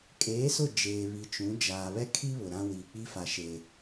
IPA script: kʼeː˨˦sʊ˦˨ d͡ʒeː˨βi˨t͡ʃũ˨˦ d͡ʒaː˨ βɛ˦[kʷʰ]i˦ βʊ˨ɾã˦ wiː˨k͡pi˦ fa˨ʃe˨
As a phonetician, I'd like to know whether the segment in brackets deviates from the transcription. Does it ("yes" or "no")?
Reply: yes